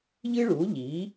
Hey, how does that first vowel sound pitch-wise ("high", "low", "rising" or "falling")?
high